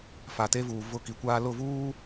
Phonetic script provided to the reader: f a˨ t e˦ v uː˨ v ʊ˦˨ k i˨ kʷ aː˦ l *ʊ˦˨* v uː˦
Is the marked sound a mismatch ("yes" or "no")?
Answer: no